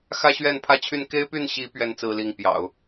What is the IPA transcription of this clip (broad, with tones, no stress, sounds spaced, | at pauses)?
x ä˥ ɕ ɥ ɛ˥˧ n pʰ ä˥˧ t͡ɕʰ y˥˩ n k e˥ ɪ̯ p y˥˩ n ɕ i˧˥ p ɥ ɛ˧˥ n t͡s ɹ̩˥ l i˥˩ ŋ p j ɑ̰˨˩˦ ʊ̯